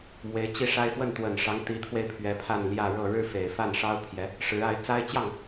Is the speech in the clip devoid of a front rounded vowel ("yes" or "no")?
yes